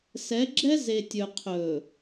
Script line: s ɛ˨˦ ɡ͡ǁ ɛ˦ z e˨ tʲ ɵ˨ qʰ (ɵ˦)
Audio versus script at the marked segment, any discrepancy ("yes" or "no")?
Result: yes